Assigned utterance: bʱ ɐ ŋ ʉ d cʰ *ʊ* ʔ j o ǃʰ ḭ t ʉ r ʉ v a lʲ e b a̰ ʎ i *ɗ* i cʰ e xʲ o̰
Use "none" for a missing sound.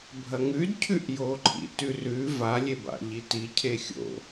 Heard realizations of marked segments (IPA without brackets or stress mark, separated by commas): ʉ, t